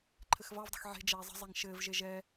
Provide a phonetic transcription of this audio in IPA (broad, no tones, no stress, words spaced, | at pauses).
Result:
ǃʰɘxvɑvdˤə̤x ʕe̤d͡ʒɛː zˤə̤ zˤɛŋʃɘːvʒe ʒɛ